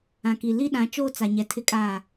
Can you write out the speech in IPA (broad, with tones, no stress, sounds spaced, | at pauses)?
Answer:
ã˨ k i˨ l i˦ ɗ ã˨˦ t͡ʃ oː˦ t͡s a˨ ɲ ɛ˨ tʰ ɪ˦ kʼ aː˦˨